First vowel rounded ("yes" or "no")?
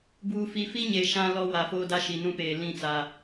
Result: yes